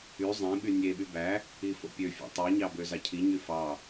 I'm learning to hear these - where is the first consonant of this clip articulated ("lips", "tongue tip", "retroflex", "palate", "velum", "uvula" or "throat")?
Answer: tongue tip